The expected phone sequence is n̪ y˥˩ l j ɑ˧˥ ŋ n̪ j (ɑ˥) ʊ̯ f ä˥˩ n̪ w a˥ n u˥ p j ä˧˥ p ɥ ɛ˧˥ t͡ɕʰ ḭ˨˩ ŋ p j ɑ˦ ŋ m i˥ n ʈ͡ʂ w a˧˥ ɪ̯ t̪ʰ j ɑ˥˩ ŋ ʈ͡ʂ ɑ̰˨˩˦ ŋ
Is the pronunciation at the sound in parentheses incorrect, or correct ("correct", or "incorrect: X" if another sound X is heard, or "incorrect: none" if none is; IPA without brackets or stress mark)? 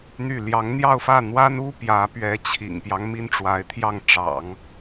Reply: incorrect: ɑ˥˧